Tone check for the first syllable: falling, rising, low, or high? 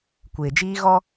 low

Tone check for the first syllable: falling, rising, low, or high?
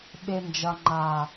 low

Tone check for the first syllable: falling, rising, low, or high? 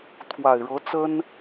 low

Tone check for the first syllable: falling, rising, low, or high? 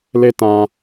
high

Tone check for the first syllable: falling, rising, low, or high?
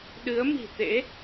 rising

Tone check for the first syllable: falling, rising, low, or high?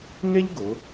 high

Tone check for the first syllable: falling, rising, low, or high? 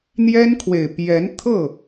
high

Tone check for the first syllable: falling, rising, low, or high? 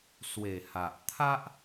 low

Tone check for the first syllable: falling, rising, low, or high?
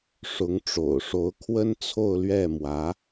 rising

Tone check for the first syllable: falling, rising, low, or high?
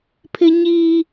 high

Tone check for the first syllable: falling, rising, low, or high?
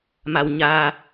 low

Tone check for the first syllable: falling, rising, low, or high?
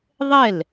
falling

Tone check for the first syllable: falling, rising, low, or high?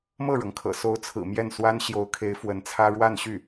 falling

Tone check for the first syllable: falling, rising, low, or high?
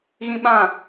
high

